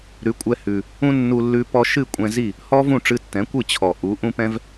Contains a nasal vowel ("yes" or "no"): yes